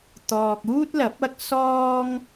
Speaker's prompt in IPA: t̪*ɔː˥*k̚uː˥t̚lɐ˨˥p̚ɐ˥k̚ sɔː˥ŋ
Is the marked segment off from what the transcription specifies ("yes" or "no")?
yes